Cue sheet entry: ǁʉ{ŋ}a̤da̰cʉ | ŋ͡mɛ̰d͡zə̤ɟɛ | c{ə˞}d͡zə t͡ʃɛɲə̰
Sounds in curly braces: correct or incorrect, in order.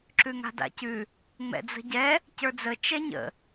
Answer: correct, correct

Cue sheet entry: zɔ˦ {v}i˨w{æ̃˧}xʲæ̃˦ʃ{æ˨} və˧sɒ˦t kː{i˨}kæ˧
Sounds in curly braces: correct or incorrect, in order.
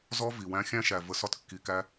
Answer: correct, correct, correct, correct

